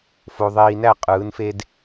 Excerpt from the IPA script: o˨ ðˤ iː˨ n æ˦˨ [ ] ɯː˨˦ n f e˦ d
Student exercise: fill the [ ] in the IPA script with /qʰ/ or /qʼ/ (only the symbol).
qʼ